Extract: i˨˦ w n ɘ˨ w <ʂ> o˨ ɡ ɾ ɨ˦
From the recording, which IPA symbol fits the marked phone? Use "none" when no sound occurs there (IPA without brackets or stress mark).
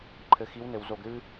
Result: z